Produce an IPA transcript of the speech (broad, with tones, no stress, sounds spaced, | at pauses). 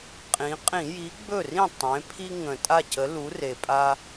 qʼ ĩ˩˧ qʼ ĩ˧˩˧ j i˨˥ ɡ͡b ɵ˥˩ r ĩ˥˩ tˤ ẽ˩˧ pʰ i˦ ŋ ə̃˨˩ tʼ a˥˩ c ə˨˥ l u˨˥ r e˨˩ pʼ a˦